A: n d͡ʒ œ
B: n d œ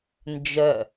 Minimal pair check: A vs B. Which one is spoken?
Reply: A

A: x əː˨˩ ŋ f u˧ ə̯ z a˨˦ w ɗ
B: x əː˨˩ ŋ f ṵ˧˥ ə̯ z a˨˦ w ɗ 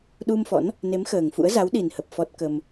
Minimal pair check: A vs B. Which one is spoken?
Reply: B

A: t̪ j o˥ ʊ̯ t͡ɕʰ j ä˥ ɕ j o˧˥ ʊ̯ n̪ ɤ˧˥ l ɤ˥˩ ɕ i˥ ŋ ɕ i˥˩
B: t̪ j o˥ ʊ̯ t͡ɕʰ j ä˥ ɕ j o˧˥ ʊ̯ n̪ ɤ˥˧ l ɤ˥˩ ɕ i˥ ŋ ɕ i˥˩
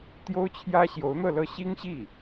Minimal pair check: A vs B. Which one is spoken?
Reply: B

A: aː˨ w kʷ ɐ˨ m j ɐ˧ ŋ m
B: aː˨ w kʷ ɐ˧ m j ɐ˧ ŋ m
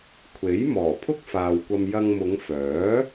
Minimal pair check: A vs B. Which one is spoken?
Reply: B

